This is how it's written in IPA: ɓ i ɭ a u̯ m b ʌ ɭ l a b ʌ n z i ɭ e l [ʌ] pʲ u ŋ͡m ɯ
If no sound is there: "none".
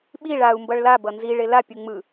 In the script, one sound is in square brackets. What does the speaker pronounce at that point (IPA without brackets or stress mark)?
a